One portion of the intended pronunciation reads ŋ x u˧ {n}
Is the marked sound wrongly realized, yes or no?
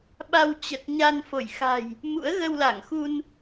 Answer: no